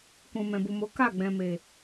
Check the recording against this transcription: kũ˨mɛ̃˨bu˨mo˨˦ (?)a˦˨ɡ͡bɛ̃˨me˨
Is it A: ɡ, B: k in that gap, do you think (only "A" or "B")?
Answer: B